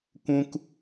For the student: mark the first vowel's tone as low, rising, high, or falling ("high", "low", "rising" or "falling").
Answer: high